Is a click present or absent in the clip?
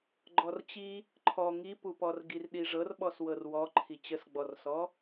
present